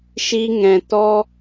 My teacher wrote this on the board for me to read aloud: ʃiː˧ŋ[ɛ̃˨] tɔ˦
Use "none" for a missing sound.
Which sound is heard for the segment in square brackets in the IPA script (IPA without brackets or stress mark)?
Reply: ɛ̃˨